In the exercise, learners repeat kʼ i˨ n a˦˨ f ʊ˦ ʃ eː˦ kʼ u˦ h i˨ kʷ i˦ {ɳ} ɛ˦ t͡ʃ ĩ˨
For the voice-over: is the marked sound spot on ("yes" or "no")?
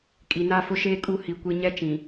no